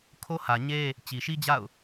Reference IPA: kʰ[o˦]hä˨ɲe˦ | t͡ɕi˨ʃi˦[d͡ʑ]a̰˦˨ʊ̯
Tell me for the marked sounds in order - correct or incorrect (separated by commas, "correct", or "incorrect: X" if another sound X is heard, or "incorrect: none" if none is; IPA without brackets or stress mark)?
correct, correct